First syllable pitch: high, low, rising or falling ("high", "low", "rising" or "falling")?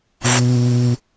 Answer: high